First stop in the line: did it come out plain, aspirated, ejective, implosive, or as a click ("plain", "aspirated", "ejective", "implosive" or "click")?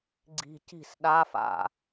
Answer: click